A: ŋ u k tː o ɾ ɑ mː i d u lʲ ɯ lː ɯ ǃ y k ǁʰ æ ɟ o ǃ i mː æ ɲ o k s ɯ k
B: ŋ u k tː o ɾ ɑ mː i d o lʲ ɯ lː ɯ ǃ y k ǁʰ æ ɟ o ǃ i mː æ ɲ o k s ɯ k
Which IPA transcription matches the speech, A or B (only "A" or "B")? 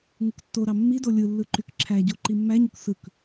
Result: B